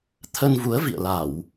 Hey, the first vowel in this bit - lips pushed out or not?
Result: no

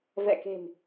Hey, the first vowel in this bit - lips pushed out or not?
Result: no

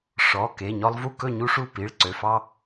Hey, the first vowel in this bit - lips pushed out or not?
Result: yes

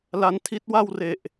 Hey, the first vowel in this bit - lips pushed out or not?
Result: no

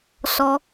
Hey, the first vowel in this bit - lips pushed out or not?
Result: yes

